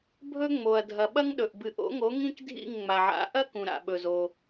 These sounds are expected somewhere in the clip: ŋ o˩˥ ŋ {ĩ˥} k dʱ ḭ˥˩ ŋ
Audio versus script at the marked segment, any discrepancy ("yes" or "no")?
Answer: no